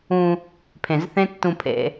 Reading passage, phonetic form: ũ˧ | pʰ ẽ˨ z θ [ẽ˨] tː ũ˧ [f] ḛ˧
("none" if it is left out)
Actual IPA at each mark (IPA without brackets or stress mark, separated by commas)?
ẽ˦, pʰ